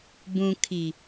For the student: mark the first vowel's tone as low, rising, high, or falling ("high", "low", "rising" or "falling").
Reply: low